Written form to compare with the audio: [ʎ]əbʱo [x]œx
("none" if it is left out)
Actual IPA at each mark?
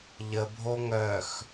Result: ʎ, ŋ

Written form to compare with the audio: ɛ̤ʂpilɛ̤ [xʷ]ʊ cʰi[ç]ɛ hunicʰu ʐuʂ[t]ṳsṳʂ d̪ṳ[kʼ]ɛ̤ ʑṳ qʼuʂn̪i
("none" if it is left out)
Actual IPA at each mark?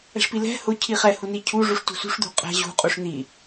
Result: h, χ, t, qʼ

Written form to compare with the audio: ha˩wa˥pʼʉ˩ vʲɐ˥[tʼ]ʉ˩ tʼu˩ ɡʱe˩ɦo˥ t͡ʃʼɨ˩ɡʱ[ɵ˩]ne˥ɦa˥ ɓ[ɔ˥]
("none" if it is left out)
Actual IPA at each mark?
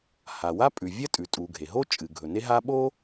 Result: tʼ, ɵ˩, o˥

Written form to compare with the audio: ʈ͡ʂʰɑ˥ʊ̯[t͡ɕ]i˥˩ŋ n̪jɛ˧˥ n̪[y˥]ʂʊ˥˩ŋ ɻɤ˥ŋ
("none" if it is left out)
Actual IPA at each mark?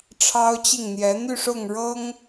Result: t͡ɕ, y˥˧

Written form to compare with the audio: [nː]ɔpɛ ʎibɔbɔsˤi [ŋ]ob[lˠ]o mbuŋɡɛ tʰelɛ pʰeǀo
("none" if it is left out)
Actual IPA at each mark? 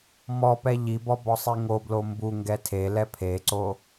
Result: m, ŋ, l

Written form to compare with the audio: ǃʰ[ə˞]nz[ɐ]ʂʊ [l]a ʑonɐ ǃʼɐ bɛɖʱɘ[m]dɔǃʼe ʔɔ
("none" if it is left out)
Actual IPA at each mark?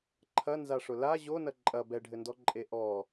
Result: ɐ, a, l, n

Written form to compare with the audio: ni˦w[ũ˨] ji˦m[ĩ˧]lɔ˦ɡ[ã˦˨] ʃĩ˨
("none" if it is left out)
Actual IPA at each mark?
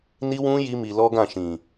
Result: ũ˦, i˧, ã˦˨

